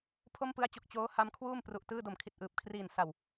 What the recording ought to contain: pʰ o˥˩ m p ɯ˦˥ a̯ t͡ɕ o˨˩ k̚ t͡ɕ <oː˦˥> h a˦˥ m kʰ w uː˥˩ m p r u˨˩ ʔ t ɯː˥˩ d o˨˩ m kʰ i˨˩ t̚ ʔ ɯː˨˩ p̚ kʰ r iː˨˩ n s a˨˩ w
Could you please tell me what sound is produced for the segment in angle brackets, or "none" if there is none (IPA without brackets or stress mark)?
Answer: oː˦˥